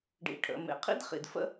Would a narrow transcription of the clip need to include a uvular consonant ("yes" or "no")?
yes